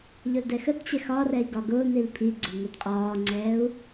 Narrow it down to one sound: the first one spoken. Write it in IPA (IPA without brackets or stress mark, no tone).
ʎ